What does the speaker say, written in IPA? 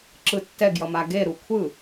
ǁ ɯ tː ɛ ɡ j ʌ m a ɡ e ɾ u kʷʰ ɯ

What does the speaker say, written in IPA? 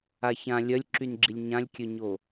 a ç ã lʲ œ lʲ ǁ y n ɡ͡ǁ i lʲ ɲ ã lʲ kʲ ø ɲ o

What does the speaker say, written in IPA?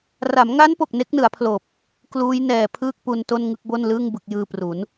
r a˩˦ m ŋ a˦˥ n p o˨˩ k̚ n e˦˥ k̚ n ɯ˩˦ a̯ pʰ l oː˨˩ p̚ | k l uː˦˥ j n ɛː˨˩ pʰ ɯː˥˩ k̚ p u˧ n t o˥˩ n ŋ ɯ˥˩ k̚ b o˥˩ n l ɯː˥˩ ŋ b ɯ˨˩ k̚ j ɯː˧ p r u˩˦ n

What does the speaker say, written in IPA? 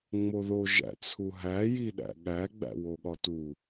ŋ͡m o ð o ʒ æ̰ t͡sʰ u ɦ æ j i ɗ æ̰ ɠ æ ɡ͡b æ̰ w o ɠ ɒ t u

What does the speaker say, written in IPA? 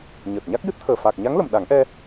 ɲ əː˨˩ t̚ ɲ a˦˥ k̚ j ɨ˦˥ t̚ t̪ʰ əː˨˩ f aː˨˩ k̚ ɲ a˧˥ ŋ l ə˨˩ m ɗ a˨˩˦ ŋ ʔ ɛ˧

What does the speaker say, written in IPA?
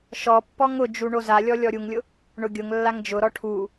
ʃ ɔ pː ɔ ŋ ʊ d͡ʒ u ɳ o z a lʲ ɔ lʲ ɔ ɾʲ u ŋ lʲ ʊ | ɳ ʊ ɡʲ ʊ ŋ lː a ŋ d͡ʒ ʊ ɾ ɔ ʈʰ u

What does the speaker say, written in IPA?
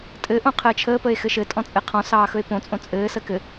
tʼ ɘ ʔ õ qʰ əː t͡ʃʰ əː p ə e̯ x ɘ ʃ ɘ tʼ ɔ̃ t͡sʼ ɘ qʰ ɔ̃ s ɑː x ɵ e̯ p õ t͡sʼ õ t͡sʼ ɘː s ə k ɘ

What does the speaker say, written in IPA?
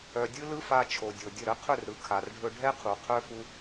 œ˨ dʲ ɯ˦ l ɯ˦ f a˧ t͡ʃʰ o˨ dʲ o˨ dʲ ə˦˨ ɾ ə˧ qʰ ɵ˦˨ r ɾ ɯ˨ kʰ a˨ r ɖʱ ɵ˧ ɖʱ ɛ˦ qʰ u˨ qʰ œ˦ f u˦

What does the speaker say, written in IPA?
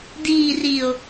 d iː r i o̯

